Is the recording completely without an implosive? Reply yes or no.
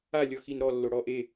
yes